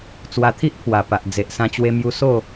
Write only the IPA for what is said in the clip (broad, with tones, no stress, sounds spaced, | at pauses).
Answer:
t͡s w a˧ t̪ʰ i˦ ʔ pʰ w a˨˩ p a˨ ʔ d͡z e˨ ʔ s ã˧ t͡ɕ w e˧ m j u˧ s o˥˧